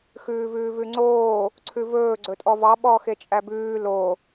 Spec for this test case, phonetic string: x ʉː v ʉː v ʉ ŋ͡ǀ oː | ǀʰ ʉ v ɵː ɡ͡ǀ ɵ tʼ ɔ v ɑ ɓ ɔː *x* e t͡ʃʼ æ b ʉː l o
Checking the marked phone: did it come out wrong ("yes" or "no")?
no